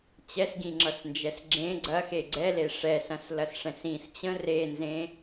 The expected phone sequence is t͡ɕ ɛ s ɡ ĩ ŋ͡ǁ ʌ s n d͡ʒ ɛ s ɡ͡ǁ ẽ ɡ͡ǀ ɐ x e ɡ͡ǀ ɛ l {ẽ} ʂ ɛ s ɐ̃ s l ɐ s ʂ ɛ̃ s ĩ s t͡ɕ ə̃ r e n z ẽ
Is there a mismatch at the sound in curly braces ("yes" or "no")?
yes